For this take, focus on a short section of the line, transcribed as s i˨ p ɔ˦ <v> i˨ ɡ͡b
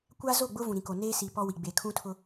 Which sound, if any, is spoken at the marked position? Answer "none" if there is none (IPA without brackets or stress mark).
w